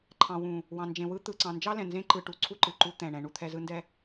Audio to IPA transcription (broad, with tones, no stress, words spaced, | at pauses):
ǃʰɑ̃˨wũ˨ | wɑ̃˨nd͡ʒẽ˨wɯ˦ t̪ɯ˨ǀɑ̃˨nd͡ʒɑ˦ lɛ̃˨ nzẽ˦ǃɯ˨ ʈu˨ǀʰu˦ ǃɯ˨ǃu˦ t̪ɛ̃˨ɳɛ̃˨˦ɳu˦t̪ʰɛ˦ zɯ˦ndɛ˦